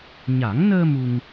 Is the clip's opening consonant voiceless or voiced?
voiced